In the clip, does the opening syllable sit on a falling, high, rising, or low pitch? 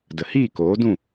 low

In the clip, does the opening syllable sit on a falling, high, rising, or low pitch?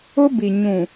high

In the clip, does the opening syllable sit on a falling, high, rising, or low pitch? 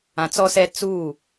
low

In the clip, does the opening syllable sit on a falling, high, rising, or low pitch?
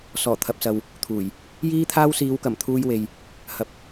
low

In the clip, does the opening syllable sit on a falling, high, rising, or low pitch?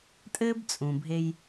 high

